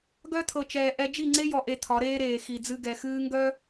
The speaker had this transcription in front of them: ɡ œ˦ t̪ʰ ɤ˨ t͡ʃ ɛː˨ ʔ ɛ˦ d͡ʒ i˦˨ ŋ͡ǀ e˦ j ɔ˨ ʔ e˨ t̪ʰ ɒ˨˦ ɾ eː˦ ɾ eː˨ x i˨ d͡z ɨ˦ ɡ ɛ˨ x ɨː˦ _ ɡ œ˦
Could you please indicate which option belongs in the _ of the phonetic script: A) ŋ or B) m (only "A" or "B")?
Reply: A